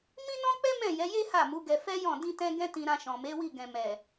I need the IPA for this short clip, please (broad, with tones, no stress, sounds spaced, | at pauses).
m ĩ˦ n ɔ̃˦ k͡p ɛ˦ m ɛ̃˦˨ j ɛ˨˦ j e˦ h a˦˨ m u˨˦ ɡ ɛ˧ f ɛ˦ j ɔ̃˦˨ d ĩ˧ t ɛ̃˧ ɡ ɛ̃˦ t ĩ˧ ɾ ã˧ ʃ ɔ̃˨ m e˨˦ w i˦˨ ɡ ɛ̃˨ m ɛ˨